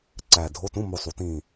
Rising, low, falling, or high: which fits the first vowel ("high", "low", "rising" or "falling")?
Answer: low